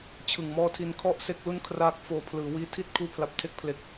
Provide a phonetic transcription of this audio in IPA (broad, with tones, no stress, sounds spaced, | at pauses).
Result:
t͡ɕʰ ɯ˨˩ ŋ m ɔː˦˥ tʰ i˧ n kʰ ɔ˥˩ ʔ s e˥˩ k̚ l u˥˩ n kʰ r aː˦˥ k̚ f oː˧ pʰ l ɯː˩˦ w iː˧ tʰ i˥˩ t̚ kʰ uː˦˥ pʰ l a˨˩ p̚ tʰ e˦˥ k̚ pʰ l e˨˩ k̚